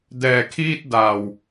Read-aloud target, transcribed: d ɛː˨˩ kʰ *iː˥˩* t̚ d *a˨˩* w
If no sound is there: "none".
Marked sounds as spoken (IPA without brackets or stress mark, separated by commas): iː˥˩, a˨˩